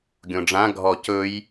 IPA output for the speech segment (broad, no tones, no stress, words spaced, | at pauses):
ɡʲõɖ͡ʐã ɡʱɔ cɵj